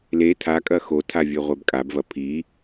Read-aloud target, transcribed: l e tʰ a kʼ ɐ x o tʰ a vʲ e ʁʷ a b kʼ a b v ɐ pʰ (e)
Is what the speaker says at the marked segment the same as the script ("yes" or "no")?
no